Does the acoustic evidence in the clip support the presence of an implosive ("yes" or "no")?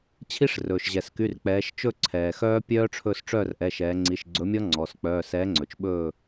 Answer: yes